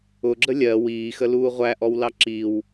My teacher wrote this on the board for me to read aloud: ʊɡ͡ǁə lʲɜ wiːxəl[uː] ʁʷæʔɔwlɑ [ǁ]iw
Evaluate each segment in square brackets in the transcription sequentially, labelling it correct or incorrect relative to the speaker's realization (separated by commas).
correct, correct